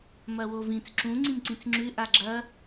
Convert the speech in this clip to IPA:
m ɐ w o v ĩ t͡s ǁ ũ ŋ͡ǀ ĩ m ǀ ĩ t͡s ŋ͡ǁ ʉ ʔ a ɡ͡ǁ ɐ

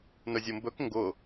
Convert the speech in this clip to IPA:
n ɵ zʲ o m b ɵ k ŋ ɡ ʊ

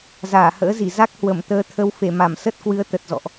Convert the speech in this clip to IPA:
z aː˧˩ h ə̰ː˧˥ z i˧˩ z a˦˥ k̚ h w ə˧˩ m t̪ əː˨˦ t̪ʰ ə˨˦ w f e˧˩ m a˧˩ m s ə˦˥ t̚ k w ɨ˨˦ ə̯ t̪ ə˨˩ t̚ z ɔ̰˧˨ ʔ

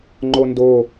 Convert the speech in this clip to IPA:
ŋ͡ǃ o n d o

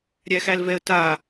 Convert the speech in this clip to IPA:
ɾʲ æ x æ l v ɛ ə̯ t a

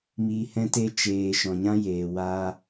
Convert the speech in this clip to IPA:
m iː˧ h ɛ̃˦ t e˦ t͡ʃ eː˧ ʃ ɔ̃˨ ɲ ã˦ j eː˨ w aː˧

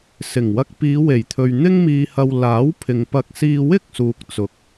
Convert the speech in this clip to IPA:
s ɪ˨˩ ŋ w ɐ˧ k̚ p iː˨˧ w e˨˩ j t̪ʰ ɵ˨ ɥ n̪ ɪ˥ ŋ m iː˧ h ɐ˧ w l aː˨˥ w pʰ ɪ˨ ŋ p ɐ˧ k̚ s iː˧ w ɪ˥ k̚ s uː˨ k̚ t͡s ʊ˨˥ k̚

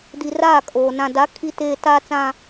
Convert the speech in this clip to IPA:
d i˨ r aː˦˨ kʼ oː˨ n ã˨ d a˨˦ kʰ i˦ t eː˦ t aː˦ t͡s ã˦

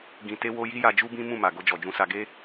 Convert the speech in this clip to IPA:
ɡ ĩ˧ t e˦ w o˦ j i˦ j a˧ d͡ʒ u˦ b ĩ˦ m ũ˦˨ m a˨ ɡ o˧ d͡ʒ ɔ˨ d͡ʒ ũ˧ s a˧ ɡ e˦

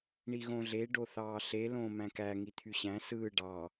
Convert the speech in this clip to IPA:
ɳ i ɣ õ ɮ e ɖ o θ ɑː ɬ e l õː m æ̃ k æ ŋ i t̪ʰ y ɕ æ̃ s ɯː ɖ ɑ

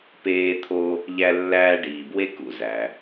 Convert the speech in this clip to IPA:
p eː˦ t̪ʰ o˦ | ʎ æ˦ lː æː˦ ɖ iː˨ b w e˥ k ṵ˦ z æ˩

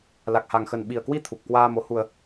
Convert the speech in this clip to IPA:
l a˨˩ k̚ h a˨˩ ŋ x ə˨˩ n ɓ i˨˩ ə̯ k w i˧ t̪ʰ u˨˩ p̚ k w aː˧ m o˨˦ h u˧ ə̯

